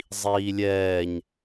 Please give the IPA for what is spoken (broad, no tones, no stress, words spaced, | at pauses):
zˤiːlʲɛːɲ